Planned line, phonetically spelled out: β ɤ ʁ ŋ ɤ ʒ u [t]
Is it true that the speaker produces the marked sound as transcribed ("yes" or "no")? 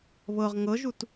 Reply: yes